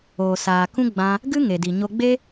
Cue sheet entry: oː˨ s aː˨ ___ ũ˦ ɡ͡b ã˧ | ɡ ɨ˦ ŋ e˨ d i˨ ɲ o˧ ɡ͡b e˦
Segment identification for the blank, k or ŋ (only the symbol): k